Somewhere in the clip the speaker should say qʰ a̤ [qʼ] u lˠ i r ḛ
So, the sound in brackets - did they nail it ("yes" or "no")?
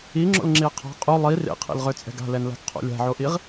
yes